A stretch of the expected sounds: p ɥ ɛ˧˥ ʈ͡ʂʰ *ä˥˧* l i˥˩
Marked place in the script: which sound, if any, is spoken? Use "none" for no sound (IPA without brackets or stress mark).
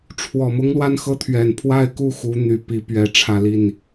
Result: ä˥˧